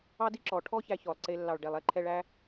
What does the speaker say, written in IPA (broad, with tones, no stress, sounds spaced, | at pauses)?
ɑ˦ d i˦ ǁ ɔ˨ ʈʰ ɔ˦ ç æ˧ ç ɔ˨ lˠ ǀ e˧ lː ɑ˨ ɭ ɖ ɛ˨ lˠ ɛ˦ ǃʰ ɛ˧ ɭ æ˦